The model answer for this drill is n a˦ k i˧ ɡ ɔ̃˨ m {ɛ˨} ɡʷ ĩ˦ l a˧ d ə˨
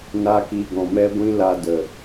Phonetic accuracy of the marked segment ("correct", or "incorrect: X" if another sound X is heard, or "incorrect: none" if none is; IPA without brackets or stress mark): incorrect: ɛ˦